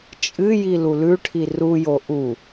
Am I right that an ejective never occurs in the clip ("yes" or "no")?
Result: no